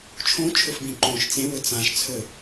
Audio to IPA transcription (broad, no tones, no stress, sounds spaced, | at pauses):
t͡ʃʰ õ t͡ʃʰ ɵ f b ĩ ǃ õ ʃ t͡s ẽ w ɵ t͡s ã ʃ t͡sʰ ɵ